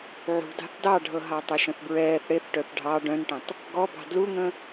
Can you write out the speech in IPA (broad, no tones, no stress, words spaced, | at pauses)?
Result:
ʕṳdɑ̤θ dɑɖʱɤɦɑtˤœ ʃə̃θbɹɛːθ ɽeθʈœθ ɖʱɑ ɖœ̃nʈə̃tˤ | ɡɔbɑ̤ dluŋə̃